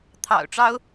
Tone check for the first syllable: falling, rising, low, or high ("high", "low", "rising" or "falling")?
low